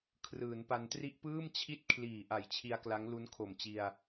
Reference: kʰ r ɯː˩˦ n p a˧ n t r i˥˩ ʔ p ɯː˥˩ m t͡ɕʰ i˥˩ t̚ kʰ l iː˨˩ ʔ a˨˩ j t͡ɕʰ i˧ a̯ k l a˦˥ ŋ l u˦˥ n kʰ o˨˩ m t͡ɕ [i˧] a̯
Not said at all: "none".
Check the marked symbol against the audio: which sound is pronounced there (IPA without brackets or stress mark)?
i˧